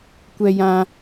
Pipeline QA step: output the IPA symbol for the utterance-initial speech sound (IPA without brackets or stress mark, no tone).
kʷ